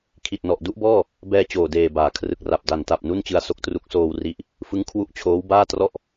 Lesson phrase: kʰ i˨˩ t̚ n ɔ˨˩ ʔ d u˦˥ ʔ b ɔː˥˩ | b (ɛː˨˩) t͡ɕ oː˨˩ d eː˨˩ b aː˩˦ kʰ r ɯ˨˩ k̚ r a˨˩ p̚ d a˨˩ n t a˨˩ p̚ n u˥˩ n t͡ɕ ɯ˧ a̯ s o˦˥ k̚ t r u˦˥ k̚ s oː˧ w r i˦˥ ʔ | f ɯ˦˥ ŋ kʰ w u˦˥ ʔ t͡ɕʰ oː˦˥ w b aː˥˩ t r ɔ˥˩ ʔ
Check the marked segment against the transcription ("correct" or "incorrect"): incorrect